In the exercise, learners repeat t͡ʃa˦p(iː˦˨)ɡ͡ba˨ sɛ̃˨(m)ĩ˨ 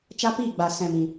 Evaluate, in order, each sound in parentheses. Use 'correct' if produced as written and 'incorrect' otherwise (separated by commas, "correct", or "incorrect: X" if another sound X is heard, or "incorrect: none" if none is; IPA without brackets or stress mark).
correct, correct